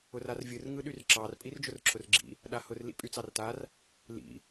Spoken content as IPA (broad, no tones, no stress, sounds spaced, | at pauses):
ʊ r a r vʲ ɯ r ŋ ɯ ɗ y r ǁ ɑ r pʼ i r d͡ʒ ʊ r ǁʰ ʊ r ɡ͡ǁ ḭ | ɗ a h ʊ r l ḭ pʼ y t͡s ɑ r t a r | l ḭ